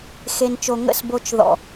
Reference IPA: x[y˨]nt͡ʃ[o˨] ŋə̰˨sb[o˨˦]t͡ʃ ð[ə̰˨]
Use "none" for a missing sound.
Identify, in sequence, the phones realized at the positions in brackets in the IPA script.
e˨, o˨, o˨, ɔ̰˨

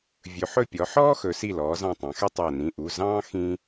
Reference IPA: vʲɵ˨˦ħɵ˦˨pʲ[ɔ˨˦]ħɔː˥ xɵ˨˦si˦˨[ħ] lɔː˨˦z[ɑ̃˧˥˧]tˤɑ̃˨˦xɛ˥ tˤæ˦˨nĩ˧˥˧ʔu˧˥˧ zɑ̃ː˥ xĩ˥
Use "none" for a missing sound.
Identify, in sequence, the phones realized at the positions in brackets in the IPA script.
ɔ˨˦, none, ɑ̃˦˨

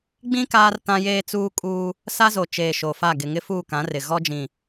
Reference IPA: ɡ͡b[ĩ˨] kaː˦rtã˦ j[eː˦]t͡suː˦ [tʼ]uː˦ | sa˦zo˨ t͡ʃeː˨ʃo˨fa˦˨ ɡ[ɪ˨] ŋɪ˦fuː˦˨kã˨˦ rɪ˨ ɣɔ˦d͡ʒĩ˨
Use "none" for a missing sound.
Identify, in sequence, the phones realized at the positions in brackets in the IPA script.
ĩ˦, eː˦, kʼ, ɪ˨

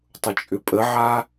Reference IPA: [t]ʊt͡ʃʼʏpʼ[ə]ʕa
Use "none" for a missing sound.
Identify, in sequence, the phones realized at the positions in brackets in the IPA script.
tˤ, ə

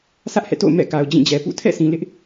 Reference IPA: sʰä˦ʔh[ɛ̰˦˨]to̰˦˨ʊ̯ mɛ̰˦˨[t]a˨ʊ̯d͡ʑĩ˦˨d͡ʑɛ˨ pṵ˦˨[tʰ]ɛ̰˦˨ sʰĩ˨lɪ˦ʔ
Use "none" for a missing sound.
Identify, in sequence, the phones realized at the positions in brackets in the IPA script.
ɛ̰˦˨, k, tʰ

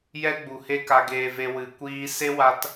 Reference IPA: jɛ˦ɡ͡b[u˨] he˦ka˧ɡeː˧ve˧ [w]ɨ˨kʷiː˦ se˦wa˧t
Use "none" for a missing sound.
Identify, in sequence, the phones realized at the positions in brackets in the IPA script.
u˨, w

